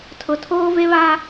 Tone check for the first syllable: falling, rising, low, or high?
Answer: low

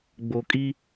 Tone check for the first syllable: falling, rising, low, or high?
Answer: low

